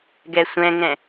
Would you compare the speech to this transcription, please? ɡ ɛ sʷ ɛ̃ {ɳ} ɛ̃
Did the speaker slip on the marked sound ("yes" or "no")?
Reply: yes